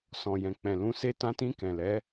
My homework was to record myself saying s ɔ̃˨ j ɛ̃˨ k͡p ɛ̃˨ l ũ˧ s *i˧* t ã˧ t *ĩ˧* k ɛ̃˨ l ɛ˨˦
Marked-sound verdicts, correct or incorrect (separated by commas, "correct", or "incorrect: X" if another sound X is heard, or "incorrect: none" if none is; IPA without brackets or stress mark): incorrect: e˧, correct